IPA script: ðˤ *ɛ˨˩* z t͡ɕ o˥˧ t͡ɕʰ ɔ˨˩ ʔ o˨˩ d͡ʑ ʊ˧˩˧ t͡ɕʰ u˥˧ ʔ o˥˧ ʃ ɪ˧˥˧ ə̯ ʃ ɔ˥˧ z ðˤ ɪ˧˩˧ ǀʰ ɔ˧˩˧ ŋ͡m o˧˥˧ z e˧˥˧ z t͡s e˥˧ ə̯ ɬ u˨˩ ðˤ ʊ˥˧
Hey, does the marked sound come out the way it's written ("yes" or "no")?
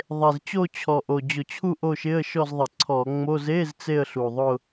no